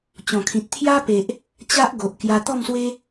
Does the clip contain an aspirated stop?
yes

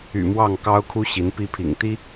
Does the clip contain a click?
no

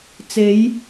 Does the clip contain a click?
no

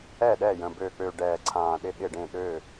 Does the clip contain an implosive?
yes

